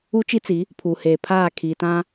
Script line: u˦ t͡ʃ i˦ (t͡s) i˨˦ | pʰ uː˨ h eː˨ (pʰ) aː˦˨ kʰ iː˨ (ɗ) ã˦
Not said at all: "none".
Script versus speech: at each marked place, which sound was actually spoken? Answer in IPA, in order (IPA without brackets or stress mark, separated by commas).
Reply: t͡s, pʰ, t